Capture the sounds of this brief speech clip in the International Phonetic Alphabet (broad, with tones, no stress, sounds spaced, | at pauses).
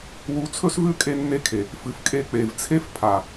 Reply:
w u˨˦ t͡sʰ ɵ˦ s v ʉ˦ kʼ e˧ nː e˧ kʰ e˨ | f ɨ˨ f kʼ e˧ k͡p e˨ v t͡sʰ e˦ f pʰ a˨